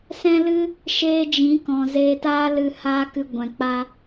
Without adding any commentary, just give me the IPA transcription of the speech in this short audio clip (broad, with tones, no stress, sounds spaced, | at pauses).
s ɛ̃˦ l ɨ˦ | ʃ eː˦ d͡ʒ ĩ˨˦ k ɔ̃˨ z e˧ t aː˦ l ɨ˧ h aː˦ k ɨ˧ ɡʷ ɛ̃˨ k͡p a˧